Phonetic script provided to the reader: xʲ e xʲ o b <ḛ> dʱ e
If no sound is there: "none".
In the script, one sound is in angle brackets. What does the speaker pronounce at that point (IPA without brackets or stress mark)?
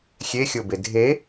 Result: e